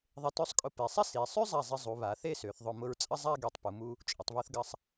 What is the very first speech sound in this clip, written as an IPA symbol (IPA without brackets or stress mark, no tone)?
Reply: ðˤ